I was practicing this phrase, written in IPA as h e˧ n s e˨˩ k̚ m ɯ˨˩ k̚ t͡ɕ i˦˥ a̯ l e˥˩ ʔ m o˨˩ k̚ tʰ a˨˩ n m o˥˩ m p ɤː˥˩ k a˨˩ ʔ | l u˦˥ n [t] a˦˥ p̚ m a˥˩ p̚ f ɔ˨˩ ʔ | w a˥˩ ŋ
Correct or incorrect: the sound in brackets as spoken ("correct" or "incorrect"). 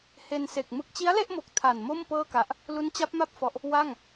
incorrect